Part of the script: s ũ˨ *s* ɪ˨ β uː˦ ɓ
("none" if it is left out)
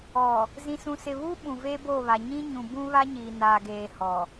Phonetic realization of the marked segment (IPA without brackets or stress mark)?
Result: s